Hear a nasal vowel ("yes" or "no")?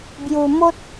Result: no